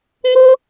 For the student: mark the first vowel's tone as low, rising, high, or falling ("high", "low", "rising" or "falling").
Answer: high